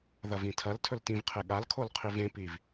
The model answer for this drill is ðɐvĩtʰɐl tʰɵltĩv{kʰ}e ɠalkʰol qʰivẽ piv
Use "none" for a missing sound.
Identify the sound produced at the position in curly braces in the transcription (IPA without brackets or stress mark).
qʰ